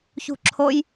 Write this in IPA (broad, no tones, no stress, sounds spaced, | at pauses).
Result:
ç ṳ ǁʰ o j